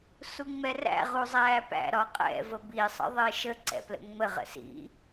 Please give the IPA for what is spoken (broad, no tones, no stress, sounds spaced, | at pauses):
s u ŋ͡m ɛ r æ̰ ʁ u zˤ æː p æ̰ ɾ ɒ qʼ ɛ̰ v ə b i sˤ ə̰ ðˤ ɪː ʃ ə ǀ ɛ̰ p l ə̰ ŋ͡m ə ʁ ə̰ s ḭ